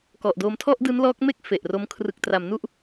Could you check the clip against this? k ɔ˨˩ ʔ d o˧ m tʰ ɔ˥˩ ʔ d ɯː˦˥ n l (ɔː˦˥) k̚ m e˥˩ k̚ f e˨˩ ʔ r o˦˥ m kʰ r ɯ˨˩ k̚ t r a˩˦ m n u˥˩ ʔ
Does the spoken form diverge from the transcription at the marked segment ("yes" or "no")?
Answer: no